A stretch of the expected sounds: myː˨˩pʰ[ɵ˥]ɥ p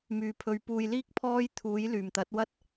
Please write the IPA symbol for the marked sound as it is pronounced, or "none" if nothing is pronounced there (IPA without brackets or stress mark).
ɵ˨